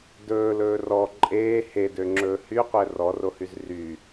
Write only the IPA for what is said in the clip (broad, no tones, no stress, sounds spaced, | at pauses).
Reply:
d ɵː l ɵː r ɔ ǃʼ eː h e d ø ŋ͡ǁ ɵː h y qʷ ɛ r ɔ r o h y z r yː